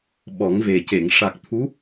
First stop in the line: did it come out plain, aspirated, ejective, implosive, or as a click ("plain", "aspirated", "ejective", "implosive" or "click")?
implosive